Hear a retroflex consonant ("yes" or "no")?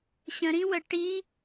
yes